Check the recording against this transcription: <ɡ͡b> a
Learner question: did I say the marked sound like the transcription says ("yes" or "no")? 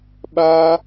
no